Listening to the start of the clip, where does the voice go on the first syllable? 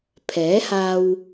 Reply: rising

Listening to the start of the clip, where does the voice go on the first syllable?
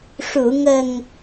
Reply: low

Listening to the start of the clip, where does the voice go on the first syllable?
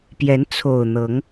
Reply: rising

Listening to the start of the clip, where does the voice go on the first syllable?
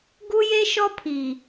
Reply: high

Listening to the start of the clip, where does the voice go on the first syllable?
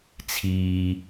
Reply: low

